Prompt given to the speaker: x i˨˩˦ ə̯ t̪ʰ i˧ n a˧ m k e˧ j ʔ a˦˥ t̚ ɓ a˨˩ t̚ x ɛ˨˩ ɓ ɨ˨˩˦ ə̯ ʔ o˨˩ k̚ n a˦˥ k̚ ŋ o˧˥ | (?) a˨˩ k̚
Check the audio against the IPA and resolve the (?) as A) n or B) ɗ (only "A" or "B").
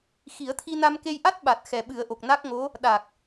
B